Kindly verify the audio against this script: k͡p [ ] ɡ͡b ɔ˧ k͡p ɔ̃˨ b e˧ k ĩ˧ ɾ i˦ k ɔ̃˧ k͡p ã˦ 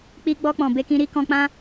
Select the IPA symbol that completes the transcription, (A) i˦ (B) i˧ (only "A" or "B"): B